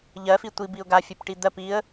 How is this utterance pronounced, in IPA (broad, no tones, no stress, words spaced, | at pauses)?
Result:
ʎɜfi tʷibiʊ̯ ɡafʲɜpʈi d̪ɜp iə̯